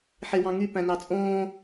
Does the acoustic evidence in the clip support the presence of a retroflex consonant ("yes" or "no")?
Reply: no